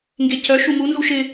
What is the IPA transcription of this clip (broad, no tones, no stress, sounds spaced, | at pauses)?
ŋ ɡ e c œ ʃ u m u n z u ʃ ɪ